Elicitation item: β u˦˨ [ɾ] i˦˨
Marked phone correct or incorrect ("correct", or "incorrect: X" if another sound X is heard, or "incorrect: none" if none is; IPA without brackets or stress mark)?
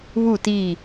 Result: incorrect: t